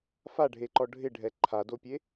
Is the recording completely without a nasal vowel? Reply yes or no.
yes